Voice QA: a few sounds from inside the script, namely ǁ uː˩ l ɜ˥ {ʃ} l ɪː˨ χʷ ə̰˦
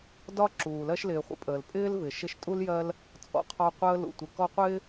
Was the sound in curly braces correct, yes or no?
yes